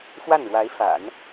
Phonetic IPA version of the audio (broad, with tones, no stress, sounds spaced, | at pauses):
x w a˥˩ n ɻ w a˧˥ ɪ̯ f a̰˨˩˦ n